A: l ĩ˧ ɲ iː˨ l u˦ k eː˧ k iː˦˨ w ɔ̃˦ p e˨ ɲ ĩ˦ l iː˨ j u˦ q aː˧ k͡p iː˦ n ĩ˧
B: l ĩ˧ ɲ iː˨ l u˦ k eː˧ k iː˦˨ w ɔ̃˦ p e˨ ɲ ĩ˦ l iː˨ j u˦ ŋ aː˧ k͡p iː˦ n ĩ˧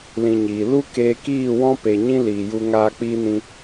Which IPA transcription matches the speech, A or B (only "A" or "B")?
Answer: B